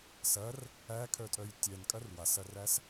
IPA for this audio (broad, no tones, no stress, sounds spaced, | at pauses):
s ɐ r | æ kʰ œ tʼ œ j tʲ ɛ n kʼ ɐ r w a s ɐ r æ s